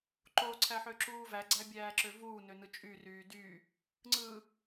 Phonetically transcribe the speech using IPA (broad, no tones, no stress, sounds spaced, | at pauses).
ǃ o ǀʰ æ ħ ø ǁ uː v æ ɡ͡ǀ æ bʲ æː ǁ ø v uː n ø n ɯ t͡ʃʼ y r yː d y | ŋ͡ǀ ɯ